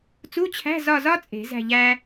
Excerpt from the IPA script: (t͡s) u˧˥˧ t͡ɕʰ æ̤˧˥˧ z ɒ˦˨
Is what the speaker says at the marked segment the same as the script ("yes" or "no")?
yes